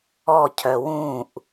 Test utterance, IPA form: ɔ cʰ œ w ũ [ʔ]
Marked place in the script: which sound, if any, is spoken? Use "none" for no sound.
ʔ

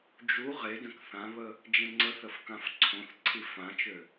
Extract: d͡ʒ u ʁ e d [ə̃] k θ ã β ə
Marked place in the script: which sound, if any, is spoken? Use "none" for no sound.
ə̃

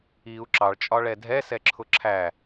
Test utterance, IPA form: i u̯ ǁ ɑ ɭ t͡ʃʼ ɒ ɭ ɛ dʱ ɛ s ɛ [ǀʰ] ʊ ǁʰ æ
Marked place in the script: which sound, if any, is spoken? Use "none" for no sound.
ǁʰ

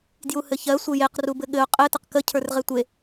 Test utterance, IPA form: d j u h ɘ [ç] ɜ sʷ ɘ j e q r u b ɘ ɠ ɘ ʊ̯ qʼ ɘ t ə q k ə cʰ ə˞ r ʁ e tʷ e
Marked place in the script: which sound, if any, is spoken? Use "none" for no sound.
ç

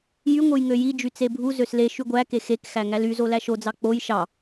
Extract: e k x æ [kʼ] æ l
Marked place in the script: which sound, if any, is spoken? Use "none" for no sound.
ŋ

